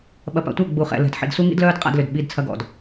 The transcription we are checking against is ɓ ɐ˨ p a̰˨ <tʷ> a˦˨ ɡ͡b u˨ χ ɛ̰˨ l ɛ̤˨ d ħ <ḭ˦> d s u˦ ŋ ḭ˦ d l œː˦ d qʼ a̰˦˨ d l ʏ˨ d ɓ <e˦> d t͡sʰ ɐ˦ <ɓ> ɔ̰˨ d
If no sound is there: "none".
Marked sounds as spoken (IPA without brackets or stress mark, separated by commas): tʷ, ḭ˨, i˦, ɡ